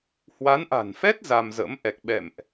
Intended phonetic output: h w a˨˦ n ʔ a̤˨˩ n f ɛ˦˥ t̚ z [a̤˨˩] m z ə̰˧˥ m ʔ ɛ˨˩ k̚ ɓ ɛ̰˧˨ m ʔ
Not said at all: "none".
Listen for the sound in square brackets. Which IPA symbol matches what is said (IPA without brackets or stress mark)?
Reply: a˧